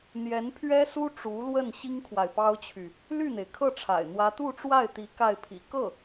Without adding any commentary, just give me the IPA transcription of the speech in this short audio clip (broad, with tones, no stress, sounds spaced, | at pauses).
n̪ j ɛ˧˥ n pʰ ɥ ɛ˥ s u˥ ʈ͡ʂ u˧˥ l w ə˥˩ n ɕ i˥ ŋ kʰ w a˨ ɪ̯ p ɑ˥ ʊ̯ t͡ɕʰ y˨ | l y˥˩ n̪ e˩ ɪ̯ kʰ ɤ˥˩ ʈ͡ʂʰ a̰˨˩ ɪ̯ n̪ w ä˥ t̪ u˥˧ ʈ͡ʂ w a˥˩ ɪ̯ t̪ i˧˥ k a˥˩ ɪ̯ pʰ ḭ˨˩ k ɤ˥˩